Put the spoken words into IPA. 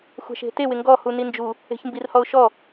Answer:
xʷ ɛ̤ ʃ e̤ t e w ɪ ŋ ɡ ɔ h u n i n d͡ʒ u | e̤ ç m b i r h ɔ ʊ̯ ʃ ɔ

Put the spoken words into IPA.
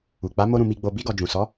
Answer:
u˨ k͡p a˨˦ m o˦ ɾ ũ˧ m i˧ ɡ͡b o˧ b i˧ ɡ ɔ˨ d͡ʒ ũ˨ s ɔ˨˦

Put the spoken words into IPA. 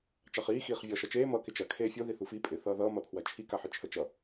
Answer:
t͡ʃ ɑ χ iː x iː χ vʲ ʌː ʃ ʌ t͡ʃ eː m ʌː k ɪ t͡ʃ ɐ kʰ eː fʲ o ð i θ u f i pʼ ɪ θ ʌː ð ʌː m ɐ pʰ w ɐ t͡ʃʰ i k a ħ ɪ t͡ʃʰ ə t͡ʃ ʌ

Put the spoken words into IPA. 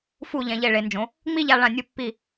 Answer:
f u˧˩ ʎ ɛ̃˩˧ ʎ e˧˩ ɭ e˩˧ n d͡ʒ õ˩˧ | ŋ͡m i˥˧ ʎ a˧ ɭ ã˧˩ nʲ u˧ pː i˧˩

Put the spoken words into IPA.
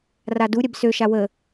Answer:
r a d u ɾʲ ɛ b s ø ʃ a w ə

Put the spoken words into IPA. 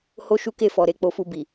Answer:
h o˦ ʃ u˦ k e˦˨ f ɔ˨ ɾ e˧ k͡p o˧ f u˧ b i˨

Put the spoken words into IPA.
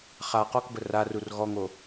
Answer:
χ a q ɔ k b ə r a r u r ɣ ɔ ŋ o

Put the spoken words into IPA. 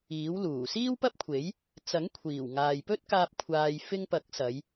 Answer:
iː˨˥ w l uː˨˩ s iː˥ w p ɐ˥ p̚ kʷʰ e˨˥ j | t͡s ɐ˨˥ ŋ kʷʰ iː˨˩ w ŋ aː˨ j p ɵ˥ t̚ k aː˧ p̚ kʷʰ aː˨ j f ɪ˧ ŋ p ɐ˨˥ k̚ s ɐ˨˧ j

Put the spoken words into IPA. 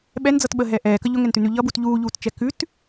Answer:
ɓ ɛ n d͡z ʌ t ɓ ə ɦ ɛ ʔ ɛː k ə ʎ ʊ ŋ ɛ n t ʉ n ʉ ʎ ʌ b u t ʎ uː ʎ uː t t͡ʃ ɛ k ʉ t

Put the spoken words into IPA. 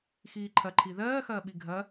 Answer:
x iː ǃʰ ɐ ǃʰ i ð ɜː x ɐː ɓ i ɡʱ ɐ

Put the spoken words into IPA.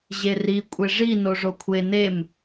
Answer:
ʑ e r i kʷʼ e ʐ i n o ʐ o kʷʰ e n e m

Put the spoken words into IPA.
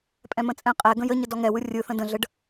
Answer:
pʼ ɛ̃ m ə̃ t͡sʼ ɛ̃ qʼ ɛ ɡ ə̃ j ə ɲ ə d ɔ ŋ ɛ w ɯ rʲ ɯ θ ə̃ d ə̃ ɮ ə ɖ

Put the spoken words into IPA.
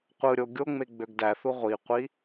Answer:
qʷ ɯ ɾʲ o ɡʲ o ŋ͡m e ɡ͡b ø ɡ d æ θ u ʁʷ i qʷ i

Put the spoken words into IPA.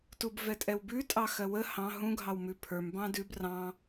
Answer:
t u b v ɛ tʼ ɛ w b ʉ tʼ ɑ x ɜ w ə h ɑ̃ ɦ ũ ɡʱ ɑ w m ʉ pʰ ə˞ m b ɑ̃ d ʉ b r ɑ̃

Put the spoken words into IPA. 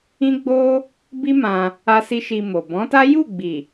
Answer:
ĩ˦ ɡ͡b o˦ | b i˦ m ã˧ | a˦ s i˦ ʃ i˧ m o˨ b ɔ̃˨˦ t a˦ j u˦˨ ɡ͡b i˨

